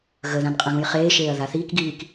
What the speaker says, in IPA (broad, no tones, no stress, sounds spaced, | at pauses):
ɣ ə ð ã n qʼ ə̃ ɣ ũ j χ eː ʃ eː ɐ̯ ð a θ iː k ɡ iː k